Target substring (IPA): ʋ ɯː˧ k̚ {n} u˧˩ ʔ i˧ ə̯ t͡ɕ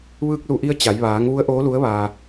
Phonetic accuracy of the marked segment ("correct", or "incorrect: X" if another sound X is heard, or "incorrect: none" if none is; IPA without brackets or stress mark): incorrect: l